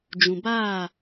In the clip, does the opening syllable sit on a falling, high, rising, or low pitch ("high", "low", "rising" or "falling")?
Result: low